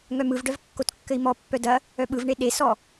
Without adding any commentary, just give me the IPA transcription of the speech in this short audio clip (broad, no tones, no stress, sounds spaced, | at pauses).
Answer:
ŋ œ m ɯ v ɖ œ v kː o t kː ɘ i̯ m ɔ pː œ d ɐ | œ ɓ ɯ v ɳ e ɗ e s ɔ